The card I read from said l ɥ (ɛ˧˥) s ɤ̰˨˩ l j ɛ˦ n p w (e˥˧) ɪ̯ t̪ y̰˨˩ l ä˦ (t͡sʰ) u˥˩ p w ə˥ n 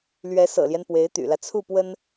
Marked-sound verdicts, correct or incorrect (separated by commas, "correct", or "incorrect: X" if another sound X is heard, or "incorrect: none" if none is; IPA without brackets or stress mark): correct, incorrect: e˧˥, correct